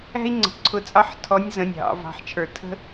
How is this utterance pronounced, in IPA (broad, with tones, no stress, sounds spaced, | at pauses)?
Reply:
æ̤˥ i̯ ŋ͡ǀ ə̤˩˧ ǀʰ ʊ˧˥ t͡sʼ ɑ˥ ħ tʰ ɔ˧˥ nʲ z ə̃˩˧˩ nʲ ɦ ɑ̰˩˧ v ɑ̤˩˧˩ ħ t͡ʃʰ ə˞˧˩˧ tʰ ə̤˥